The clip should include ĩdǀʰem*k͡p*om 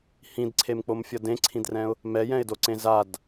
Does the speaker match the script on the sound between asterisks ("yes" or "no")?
yes